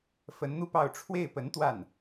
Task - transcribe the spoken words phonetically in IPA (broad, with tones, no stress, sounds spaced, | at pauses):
f ə˧˥ n n̪ u˥˧ p ɑ˥˧ ʊ̯ ʈ͡ʂʰ w e˥˩ ɪ̯ p ə˧˥ n t̪ w a˥˩ n